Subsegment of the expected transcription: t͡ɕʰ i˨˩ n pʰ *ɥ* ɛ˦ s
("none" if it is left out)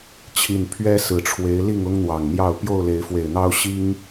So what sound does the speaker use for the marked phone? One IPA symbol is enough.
ɥ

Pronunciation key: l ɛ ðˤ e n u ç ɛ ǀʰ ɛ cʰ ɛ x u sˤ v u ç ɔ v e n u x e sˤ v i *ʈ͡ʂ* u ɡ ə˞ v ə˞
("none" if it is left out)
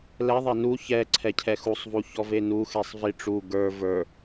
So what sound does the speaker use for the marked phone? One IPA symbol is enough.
ʈ͡ʂ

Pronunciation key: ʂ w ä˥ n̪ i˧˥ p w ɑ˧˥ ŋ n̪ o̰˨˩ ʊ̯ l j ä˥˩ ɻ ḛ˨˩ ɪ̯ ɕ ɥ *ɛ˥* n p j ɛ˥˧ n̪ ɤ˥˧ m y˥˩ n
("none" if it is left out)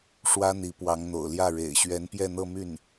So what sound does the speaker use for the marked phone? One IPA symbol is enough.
ɛ˧˥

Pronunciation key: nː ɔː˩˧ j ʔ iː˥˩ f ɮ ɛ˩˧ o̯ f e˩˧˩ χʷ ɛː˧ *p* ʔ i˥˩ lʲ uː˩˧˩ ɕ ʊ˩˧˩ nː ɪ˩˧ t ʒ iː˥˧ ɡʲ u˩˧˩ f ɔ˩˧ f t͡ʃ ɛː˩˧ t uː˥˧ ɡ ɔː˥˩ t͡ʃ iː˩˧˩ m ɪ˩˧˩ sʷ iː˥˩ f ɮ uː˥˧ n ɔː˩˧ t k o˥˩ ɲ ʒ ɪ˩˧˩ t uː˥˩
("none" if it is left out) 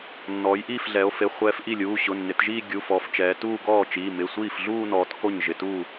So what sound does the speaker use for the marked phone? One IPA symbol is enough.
f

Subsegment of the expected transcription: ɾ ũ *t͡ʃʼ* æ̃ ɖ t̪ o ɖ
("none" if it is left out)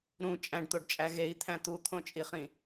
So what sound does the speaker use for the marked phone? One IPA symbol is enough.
t͡ʃʼ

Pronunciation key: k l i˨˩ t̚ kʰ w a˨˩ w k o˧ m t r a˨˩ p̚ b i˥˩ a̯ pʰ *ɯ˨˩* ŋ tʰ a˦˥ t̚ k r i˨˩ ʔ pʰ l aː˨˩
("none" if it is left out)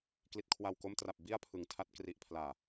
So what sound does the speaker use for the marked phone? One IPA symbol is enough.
ɯ˨˩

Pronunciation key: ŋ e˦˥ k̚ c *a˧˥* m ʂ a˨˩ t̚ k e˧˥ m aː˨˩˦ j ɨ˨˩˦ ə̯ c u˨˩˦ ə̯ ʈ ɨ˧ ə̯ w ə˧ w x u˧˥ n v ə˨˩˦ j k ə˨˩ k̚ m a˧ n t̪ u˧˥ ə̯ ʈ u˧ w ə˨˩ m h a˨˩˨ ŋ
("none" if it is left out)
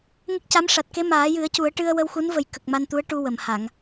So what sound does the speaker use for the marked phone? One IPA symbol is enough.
a˧˥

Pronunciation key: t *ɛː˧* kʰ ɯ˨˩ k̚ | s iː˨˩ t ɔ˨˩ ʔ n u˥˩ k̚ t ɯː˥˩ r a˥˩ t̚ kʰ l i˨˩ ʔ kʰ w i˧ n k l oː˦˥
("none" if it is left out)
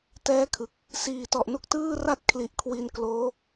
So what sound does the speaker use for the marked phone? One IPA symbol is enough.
ɛː˦˥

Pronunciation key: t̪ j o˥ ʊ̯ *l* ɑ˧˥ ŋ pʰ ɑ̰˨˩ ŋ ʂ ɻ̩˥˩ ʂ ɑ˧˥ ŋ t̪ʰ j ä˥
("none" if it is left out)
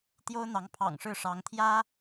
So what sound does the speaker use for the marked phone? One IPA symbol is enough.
n̪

